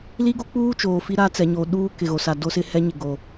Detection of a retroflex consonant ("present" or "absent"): absent